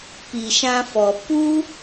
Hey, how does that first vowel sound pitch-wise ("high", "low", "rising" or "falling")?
low